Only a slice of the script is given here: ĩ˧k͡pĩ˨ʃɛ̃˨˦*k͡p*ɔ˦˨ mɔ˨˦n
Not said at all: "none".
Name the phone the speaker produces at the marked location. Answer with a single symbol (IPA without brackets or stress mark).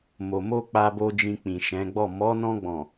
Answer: ɡ͡b